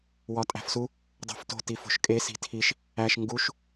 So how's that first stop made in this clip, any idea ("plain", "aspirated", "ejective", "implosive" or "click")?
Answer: ejective